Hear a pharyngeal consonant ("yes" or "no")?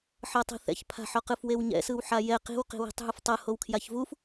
yes